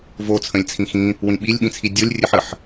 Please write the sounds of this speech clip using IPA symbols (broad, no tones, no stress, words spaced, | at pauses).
vo t͡sʰə̃lʲt͡sʰĩxĩ | wĩɓilʲɓĩt͡sʰi dʲolʲrʲɨħ əħ